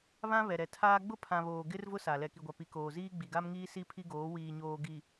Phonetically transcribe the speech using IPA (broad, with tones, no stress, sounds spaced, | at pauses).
β ã˦ β ɛ˨ ɾ ɛ˨ tʰ aː˦ ɡ͡b ʊ˦ pʰ ã˨ β oː˨ ɡ ɪ˦ r v ʊ˦ s a˨ l ɛ˨ k i˨ ɡʷ a˨ p i˨ k oː˨ z iː˦ ɡ͡b i˨ ɡ a˦ m ŋ iː˦ s i˦ pʰ i˦ ɡ oː˨˦ w iː˨ ɲ oː˨ ɡ i˨